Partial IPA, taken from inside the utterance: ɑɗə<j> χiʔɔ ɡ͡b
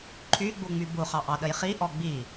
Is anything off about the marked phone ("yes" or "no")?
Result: no